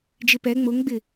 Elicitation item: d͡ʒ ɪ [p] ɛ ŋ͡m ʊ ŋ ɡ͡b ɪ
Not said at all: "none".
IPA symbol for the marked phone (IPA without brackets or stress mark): p